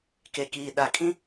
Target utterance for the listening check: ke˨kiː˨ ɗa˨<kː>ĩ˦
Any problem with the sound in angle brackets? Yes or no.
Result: yes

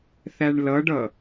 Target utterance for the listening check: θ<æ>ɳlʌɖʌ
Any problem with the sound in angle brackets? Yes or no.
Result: no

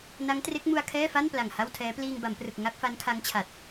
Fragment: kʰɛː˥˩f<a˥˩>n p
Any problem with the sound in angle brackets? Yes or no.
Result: no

